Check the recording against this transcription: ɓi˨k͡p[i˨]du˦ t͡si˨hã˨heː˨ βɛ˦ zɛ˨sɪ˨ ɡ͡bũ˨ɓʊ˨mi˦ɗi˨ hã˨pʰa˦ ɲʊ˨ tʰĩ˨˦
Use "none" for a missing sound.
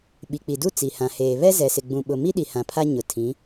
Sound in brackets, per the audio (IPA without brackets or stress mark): i˨